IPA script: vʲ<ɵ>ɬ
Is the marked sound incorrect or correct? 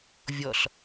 incorrect